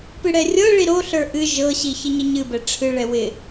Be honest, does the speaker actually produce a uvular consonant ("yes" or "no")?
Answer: no